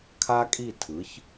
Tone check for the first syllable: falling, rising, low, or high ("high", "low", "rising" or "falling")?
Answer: high